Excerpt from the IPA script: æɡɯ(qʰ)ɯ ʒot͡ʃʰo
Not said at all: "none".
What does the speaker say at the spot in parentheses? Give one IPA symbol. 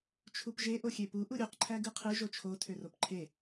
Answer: qʰ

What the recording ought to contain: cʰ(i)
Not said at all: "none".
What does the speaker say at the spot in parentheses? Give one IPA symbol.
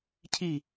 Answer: i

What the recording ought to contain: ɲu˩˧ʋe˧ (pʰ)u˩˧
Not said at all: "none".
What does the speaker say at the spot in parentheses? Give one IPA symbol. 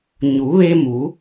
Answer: m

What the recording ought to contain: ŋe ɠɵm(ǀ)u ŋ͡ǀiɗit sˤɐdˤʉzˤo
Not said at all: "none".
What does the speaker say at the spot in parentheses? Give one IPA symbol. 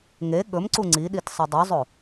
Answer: ǀ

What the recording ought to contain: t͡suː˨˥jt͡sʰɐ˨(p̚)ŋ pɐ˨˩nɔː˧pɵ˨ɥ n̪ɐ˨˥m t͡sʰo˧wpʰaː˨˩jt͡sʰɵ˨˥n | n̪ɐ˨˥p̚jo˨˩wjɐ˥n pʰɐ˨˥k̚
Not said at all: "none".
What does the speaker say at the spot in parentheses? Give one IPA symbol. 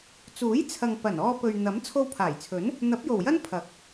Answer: none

